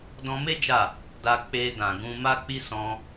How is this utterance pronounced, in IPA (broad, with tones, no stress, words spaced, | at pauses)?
dɔ̃˧me˦ d͡ʒa˦˨ | da˧k͡pe˧ dã˨ɡũ˧ ma˦k͡pi˦ sɔ̃˧